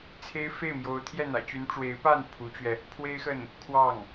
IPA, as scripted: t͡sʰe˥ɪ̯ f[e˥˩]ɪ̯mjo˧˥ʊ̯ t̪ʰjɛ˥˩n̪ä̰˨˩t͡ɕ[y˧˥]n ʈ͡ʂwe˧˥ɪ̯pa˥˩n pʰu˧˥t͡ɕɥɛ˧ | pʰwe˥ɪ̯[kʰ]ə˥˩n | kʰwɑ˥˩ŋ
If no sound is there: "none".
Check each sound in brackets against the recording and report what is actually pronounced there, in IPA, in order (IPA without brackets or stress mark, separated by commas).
e˥˩, y˧˥, x